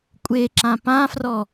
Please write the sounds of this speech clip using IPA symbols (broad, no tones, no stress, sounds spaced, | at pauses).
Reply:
kʷʼ e ǁ ã p ã f r ɔ